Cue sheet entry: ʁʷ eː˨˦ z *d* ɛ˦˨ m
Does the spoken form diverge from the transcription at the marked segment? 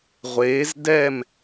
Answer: no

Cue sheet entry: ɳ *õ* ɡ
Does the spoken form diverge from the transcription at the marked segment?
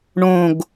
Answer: no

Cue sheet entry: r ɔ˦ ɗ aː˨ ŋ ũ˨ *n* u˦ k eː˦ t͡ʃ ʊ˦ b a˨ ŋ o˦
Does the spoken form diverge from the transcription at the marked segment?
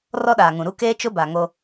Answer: yes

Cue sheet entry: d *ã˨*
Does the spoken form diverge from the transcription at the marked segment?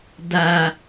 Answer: yes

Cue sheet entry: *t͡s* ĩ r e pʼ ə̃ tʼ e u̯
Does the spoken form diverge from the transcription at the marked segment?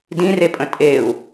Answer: yes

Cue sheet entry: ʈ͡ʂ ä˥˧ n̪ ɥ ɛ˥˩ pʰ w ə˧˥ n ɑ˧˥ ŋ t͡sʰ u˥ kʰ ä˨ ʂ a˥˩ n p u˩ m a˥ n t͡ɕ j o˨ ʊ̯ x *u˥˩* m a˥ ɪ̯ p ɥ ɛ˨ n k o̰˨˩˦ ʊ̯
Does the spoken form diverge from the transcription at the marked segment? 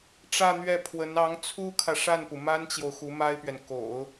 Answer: yes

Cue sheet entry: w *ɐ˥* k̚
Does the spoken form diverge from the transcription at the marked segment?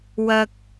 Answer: yes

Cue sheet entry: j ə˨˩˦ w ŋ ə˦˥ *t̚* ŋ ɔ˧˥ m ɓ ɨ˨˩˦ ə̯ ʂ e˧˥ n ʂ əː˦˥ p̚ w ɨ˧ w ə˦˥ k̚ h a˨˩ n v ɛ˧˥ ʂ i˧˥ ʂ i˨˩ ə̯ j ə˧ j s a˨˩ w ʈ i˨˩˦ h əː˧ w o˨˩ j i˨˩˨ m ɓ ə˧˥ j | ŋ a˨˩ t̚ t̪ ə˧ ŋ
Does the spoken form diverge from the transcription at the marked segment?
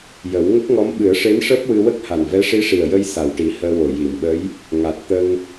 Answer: yes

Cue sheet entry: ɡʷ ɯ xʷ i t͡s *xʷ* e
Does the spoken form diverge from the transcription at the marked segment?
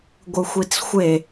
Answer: no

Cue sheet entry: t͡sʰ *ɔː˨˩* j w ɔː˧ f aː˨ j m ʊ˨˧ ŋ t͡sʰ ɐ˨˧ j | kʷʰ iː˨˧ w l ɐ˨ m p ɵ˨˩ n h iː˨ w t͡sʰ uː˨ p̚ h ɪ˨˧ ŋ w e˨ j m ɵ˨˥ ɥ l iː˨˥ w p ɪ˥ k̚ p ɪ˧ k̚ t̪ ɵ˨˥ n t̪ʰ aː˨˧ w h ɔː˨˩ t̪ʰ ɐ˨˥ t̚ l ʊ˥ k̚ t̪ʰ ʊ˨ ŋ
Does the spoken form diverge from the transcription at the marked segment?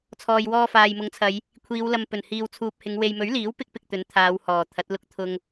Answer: yes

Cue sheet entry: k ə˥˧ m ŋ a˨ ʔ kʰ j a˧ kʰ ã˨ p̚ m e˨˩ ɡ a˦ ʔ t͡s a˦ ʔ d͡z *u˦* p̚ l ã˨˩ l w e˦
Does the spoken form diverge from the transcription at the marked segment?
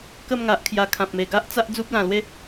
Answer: no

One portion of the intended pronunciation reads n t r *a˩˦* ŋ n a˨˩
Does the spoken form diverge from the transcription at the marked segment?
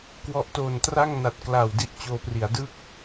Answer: yes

